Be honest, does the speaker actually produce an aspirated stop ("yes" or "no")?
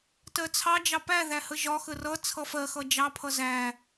yes